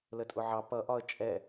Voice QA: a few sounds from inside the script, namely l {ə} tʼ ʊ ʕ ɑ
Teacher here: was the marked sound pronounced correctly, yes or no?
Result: yes